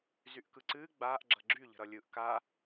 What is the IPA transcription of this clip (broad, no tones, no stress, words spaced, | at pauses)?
zyʔkɯǀɨː ɡ͡baːʔ ɡ͡ǁʌɡ͡ǁy ʎə̤ɾʌlʲɯʔ ka